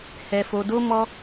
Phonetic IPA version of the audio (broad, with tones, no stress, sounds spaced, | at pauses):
h ɛ˧ f o˧ d o˦ m ɔ˧